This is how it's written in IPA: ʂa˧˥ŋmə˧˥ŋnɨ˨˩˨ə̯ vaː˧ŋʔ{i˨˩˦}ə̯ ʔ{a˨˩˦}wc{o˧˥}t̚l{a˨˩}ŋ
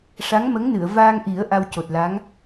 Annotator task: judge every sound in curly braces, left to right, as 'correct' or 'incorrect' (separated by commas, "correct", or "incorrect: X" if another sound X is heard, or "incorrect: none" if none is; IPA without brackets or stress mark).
correct, incorrect: a˧, incorrect: o˨˩, incorrect: a˧˥